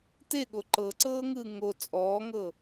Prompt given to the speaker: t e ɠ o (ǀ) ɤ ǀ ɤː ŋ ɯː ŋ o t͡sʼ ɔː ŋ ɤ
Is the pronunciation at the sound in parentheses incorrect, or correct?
incorrect